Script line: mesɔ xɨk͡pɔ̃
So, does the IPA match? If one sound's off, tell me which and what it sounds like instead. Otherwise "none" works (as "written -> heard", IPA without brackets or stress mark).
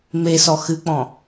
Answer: none